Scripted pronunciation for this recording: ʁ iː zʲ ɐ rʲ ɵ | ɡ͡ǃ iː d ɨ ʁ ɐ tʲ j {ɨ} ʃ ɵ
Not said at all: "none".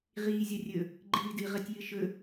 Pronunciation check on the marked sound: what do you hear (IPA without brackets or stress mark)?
ɨ